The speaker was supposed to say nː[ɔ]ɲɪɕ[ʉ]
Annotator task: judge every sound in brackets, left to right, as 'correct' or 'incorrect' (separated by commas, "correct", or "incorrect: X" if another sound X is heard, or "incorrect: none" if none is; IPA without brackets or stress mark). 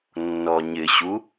correct, incorrect: u